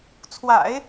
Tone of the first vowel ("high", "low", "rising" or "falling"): low